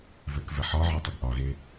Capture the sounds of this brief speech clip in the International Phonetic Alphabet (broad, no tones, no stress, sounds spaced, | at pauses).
v ɛ k v ɛ ħ ɒ ʕ ɒ tˤ ɘ ɡ ʔ ɒ ɣ e